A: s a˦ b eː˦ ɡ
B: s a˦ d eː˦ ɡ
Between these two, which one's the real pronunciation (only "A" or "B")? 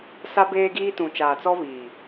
A